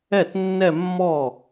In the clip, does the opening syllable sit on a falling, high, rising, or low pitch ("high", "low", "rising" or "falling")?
falling